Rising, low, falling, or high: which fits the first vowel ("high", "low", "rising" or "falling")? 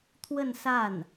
falling